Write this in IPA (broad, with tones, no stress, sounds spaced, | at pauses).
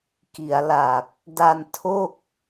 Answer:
k i˩˦ a̯ l a˨˩ k̚ | d a˧ n tʰ o˥˩ k̚